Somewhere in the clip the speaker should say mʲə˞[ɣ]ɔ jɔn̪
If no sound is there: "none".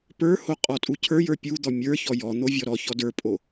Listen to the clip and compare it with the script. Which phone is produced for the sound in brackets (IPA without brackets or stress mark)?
ç